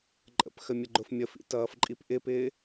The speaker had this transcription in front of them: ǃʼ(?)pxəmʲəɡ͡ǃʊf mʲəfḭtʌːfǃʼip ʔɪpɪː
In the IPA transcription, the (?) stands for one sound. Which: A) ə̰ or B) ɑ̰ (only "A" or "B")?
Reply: A